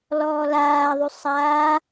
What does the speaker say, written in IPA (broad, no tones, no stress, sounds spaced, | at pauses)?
l ɔː l aː ðˤ y sˤ aː